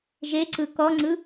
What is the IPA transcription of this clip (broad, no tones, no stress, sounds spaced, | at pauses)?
ʒ e ǀ ɯ k ɔ ŋ͡ǀ ɯ